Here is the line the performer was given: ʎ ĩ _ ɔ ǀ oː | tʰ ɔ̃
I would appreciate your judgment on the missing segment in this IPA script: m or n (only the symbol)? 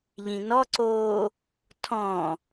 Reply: n